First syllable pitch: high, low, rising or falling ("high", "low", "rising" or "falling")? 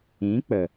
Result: rising